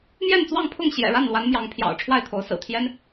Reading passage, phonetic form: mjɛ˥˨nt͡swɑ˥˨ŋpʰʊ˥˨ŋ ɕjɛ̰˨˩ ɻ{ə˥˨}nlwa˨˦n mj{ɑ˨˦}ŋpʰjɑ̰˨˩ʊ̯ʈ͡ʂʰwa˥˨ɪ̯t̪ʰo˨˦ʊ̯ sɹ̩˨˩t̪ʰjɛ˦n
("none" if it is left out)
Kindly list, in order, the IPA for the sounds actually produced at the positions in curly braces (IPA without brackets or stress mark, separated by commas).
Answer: a˥˨, ɑ˨˦